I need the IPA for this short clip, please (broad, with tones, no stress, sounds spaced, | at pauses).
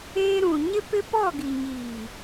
eː˦ ɾ ũ˨ ɲ ɪ˦ p ɪ˦ p ɔ˦˨ ɡ i˨ ɲ iː˨